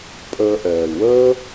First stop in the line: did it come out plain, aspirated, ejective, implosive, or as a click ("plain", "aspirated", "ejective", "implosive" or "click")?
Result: ejective